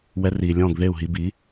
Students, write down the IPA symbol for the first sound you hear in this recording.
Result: w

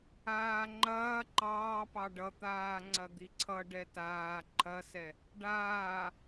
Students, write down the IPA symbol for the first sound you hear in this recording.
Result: aː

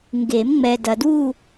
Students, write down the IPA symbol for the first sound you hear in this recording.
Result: ŋ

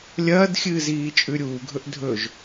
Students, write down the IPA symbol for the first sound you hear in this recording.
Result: lʲ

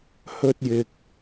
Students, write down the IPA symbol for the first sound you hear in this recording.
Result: h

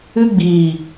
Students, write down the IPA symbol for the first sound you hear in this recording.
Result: ɨ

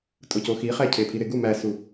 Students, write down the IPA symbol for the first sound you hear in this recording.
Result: tʼ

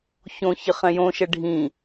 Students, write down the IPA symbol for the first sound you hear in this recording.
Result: ç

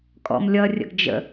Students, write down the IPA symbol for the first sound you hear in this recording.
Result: kʼ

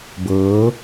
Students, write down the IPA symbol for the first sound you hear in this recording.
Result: b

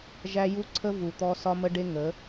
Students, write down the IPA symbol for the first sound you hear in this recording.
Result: ʒ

